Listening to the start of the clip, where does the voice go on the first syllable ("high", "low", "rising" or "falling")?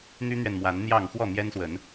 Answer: high